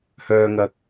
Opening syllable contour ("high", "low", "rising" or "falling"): low